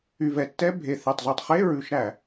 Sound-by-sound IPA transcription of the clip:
y˨˩vɛ˨˩tːɛ˧˥˧ bʱe˨˩ θɛ˨˩tˤzʉ˨˩tˤχe˧˥˧ ɹʉ˧˩˧ʃɾæ˧˩˧

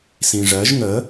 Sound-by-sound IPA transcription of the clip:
sĩʐɜʒ ŋə

